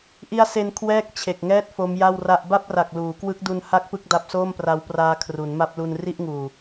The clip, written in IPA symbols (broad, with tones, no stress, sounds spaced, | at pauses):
ʔ i˦˥ a̯ s e˧ n kʰ w ɛː˥˩ k̚ t͡ɕʰ e˨˩ k̚ ŋ ɛː˥˩ t̚ f o˦˥ m j a˥˩ w r a˥˩ ʔ b a˥˩ p̚ r a˨˩ k̚ l uː˩˦ k w ɯ˦˥ k̚ d u˧ n h a˥˩ k̚ p ɯ˥˩ k̚ d a˦˥ p̚ s oː˥˩ m p r a˦˥ w p r aː˦˥ kʰ r u˩˦ n m a˦˥ p̚ l u˧ n r i˥˩ ʔ ŋ uː˨˩